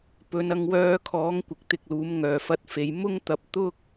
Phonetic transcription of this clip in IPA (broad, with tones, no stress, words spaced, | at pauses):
pɵ˨˧nɐ˧ŋwœː˧kʰɔː˨˥ŋ kʷɪ˨˥k̚t̪ɪ˧k̚luː˨˥m ŋœː˨˩fɐ˧t̚fe˨j mʊ˥ŋt̪ɐ˨˥p̚ t̪ʊ˥k̚